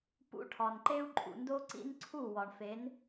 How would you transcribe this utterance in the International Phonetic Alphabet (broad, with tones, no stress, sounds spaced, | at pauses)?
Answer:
p ṵ˧ ʈʰ ɒ˨ n ǃ e˦ u̯ ǃʼ ṵ˨ n d o˦ ǀ ḭ˦ n ǀʰ u˦˨ w ɒ˨ ɳ f e˨˦ n